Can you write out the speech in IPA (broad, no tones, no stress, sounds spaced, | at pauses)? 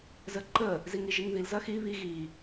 z ə ǃ ə | z i ŋ i ʒ i ŋ ð i l z ɐ x i β i ɣ i